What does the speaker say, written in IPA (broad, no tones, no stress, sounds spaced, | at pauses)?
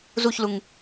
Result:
z u ç l u ŋ